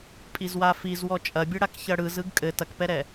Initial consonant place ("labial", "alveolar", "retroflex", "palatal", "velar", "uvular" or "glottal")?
labial